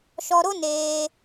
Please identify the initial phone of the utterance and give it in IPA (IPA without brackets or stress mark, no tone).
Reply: ʃ